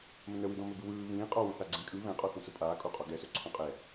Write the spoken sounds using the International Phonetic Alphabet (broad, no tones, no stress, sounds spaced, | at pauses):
m ə̃ n ə w i d ɔ̃ m ɵ b ɯ w ɯː β ĩː qʼ ɒ w õ θ a ɡ͡ǀ ĩ kʼ ɯ β ɛ̃ qʼ ɔ θ ĩ s ʊ pʼ aː kʼ o qʼ ɒ ɡ ɛ s ɵ ǀʰ ɔ̃ qʼ ɛ